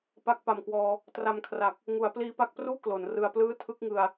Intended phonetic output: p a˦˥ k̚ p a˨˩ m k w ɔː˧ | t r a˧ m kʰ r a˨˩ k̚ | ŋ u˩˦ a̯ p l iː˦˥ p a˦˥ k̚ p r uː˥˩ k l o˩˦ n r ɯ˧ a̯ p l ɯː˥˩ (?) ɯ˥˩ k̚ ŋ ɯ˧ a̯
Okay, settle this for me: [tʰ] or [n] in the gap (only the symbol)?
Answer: tʰ